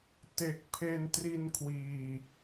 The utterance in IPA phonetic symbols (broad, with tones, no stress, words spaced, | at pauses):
te˨˩k̚ pʰe˧ntri˧nkʰwiː˨˩